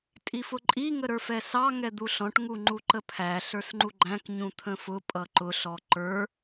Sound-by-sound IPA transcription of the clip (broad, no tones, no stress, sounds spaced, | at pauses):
tʼ i f ʊ ǃʼ i ŋ ə ɾ ə˞ f ɛ s ɑ ŋ ɛ d̪ u ɬ ɔ̃ ʈ ŋ u ŋ͡ǃ u ǃ ə pʰ æ ɬ ə˞ s ŋ͡ǃ u ɡ͡ǃ æ̃ k ɲ ũ t̪ʰ ə̃ f ʊ pʼ ʌ ǃ ʊ ɬ ɔ ǃ ə˞